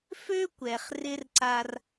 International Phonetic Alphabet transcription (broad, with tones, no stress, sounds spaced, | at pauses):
f ø˥ kʷ ɛ˩ χ r ɪ˥ r ǀ a˧ r